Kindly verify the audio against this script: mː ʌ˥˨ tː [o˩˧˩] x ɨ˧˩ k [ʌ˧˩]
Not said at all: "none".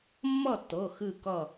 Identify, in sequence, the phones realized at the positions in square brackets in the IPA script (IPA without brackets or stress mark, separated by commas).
ɤ˩˧˩, ʌ˧˩